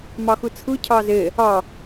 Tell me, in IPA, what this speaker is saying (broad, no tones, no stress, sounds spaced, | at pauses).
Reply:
m ɑ x ɯ t͡sʰ ɯ cʰ ɑː z e | ɑ